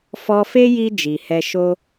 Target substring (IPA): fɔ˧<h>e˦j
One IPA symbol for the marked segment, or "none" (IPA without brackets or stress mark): f